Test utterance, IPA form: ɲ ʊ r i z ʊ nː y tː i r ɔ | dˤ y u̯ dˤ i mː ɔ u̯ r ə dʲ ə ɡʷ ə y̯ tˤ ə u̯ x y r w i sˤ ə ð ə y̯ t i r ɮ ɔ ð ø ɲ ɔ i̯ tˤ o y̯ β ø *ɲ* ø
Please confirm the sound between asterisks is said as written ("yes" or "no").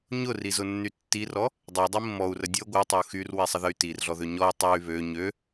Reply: yes